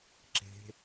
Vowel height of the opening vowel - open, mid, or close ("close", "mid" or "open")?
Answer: mid